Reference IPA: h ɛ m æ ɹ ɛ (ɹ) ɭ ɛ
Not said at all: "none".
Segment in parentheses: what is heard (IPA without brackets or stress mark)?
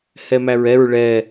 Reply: ɹ